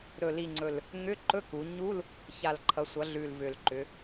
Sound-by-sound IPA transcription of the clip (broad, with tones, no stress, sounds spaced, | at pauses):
ɾ ɵ˨˩ l i˨˩ ŋ͡ǀ ɵ˨˩ l | ŋ ʏ˧˥˧ ǃ ɵ˧˥˧ k u˩˧ ɲ u˧˥˧ l | ç a˨˩ l ǃʰ ʌ˩˧ sʷ ʌ˩˧ ɮ ʉ˨˩ l v ʏ˨˩ l ǃ ʏ˩˧